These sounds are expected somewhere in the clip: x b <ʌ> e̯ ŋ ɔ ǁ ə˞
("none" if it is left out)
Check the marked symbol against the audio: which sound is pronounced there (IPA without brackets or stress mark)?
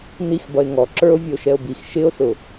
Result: ʌ